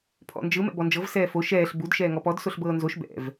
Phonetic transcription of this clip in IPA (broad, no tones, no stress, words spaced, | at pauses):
pʰɔ̰nd͡ʒɯ mɛ̰bɔnd͡ʒɤv sɛːfo ʃɛːɬ bud ʃɛːŋɔpɔd soɬbɤːnzoʃ bɛ̰v